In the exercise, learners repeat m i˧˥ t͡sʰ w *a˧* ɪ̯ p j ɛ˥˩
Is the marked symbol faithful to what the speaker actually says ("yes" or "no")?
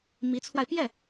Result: yes